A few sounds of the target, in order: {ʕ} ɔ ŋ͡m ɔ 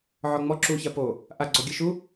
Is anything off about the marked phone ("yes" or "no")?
no